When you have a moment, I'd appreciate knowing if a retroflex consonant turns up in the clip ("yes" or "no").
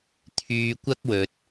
no